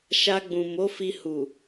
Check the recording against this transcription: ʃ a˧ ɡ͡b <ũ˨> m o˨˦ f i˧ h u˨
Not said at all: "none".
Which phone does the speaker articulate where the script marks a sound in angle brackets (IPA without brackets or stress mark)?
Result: ũ˨